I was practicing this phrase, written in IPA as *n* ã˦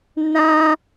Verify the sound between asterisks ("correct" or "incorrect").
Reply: correct